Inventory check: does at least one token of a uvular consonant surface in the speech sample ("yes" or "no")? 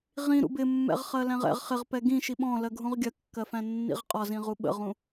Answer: yes